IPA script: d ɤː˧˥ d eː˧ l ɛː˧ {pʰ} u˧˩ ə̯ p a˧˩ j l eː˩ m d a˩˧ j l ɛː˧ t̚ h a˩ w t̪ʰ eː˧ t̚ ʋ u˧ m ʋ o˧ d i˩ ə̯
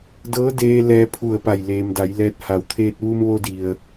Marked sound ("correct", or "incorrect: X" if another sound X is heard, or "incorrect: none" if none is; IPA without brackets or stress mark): correct